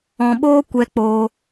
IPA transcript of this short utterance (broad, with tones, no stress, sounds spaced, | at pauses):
ɔ̃˨ ɓ oː˧ kʷ ɛ˧ k͡p oː˧